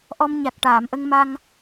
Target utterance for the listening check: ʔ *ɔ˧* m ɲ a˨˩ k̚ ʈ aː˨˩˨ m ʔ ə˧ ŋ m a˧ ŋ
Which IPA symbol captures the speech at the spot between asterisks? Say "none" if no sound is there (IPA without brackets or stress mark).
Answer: ɔ˧